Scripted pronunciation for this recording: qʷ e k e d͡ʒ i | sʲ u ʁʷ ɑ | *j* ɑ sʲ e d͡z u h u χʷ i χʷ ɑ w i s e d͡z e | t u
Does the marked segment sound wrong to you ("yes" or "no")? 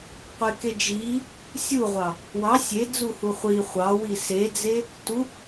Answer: yes